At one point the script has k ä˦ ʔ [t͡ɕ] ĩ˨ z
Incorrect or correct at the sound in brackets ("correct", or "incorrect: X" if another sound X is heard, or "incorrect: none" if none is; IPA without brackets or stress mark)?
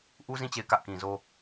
incorrect: k